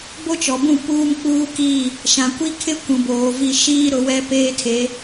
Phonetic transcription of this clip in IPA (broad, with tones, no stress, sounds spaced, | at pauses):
b o˦ t͡ʃ ɔ˨ b ũ˦˨ p uː˦ m k͡p uː˦ k i˦˨ | ʃ ã˨ kʷ i˦ kʰ ɪ˦ kʷ ũ˨ b oː˨ v i˦˨ ʃ iː˦ ɾ ʊ˨˦ w ɛ˦ p eː˦ tʰ e˨˦